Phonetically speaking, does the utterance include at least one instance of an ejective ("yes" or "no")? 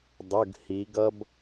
no